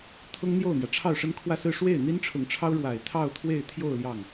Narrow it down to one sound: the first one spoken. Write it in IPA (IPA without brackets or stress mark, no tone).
t̪ʰ